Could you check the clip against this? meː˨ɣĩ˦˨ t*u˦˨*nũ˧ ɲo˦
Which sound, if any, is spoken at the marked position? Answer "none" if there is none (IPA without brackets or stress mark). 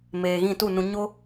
u˦˨